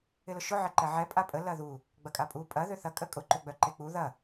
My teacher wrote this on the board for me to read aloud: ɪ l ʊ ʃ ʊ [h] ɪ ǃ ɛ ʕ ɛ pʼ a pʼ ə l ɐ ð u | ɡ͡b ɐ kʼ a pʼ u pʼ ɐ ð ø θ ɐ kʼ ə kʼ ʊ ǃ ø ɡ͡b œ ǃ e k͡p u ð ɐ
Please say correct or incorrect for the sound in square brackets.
incorrect